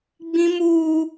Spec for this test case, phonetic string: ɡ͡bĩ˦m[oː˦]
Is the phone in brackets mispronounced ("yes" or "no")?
yes